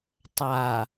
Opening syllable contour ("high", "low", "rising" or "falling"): low